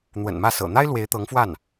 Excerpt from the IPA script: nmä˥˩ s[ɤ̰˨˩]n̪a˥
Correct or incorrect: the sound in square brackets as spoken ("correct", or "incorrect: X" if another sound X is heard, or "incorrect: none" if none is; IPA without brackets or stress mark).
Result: correct